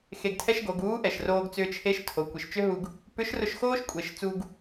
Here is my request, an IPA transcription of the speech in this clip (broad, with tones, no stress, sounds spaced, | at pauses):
x e˧ ɡ tʰ ɛ˥ ʃ ɡ o˩˧ ɡ uː˧˥ ʔ ɛ˩ ʃ r oː˧ ɡ t͡s ʏː˧ t͡ʃʰ e˧˥ ʃ tʰ o˩˧ kʷ i˩ ʃ t͡ʃ ʏ˥ ɦ u˧ ɡ | p ʏ˧˥ ʃ r ʊ˧ ʃ x oː˥ ʃ kʷʼ e˩˧ ʃ t͡s u˧ ɡ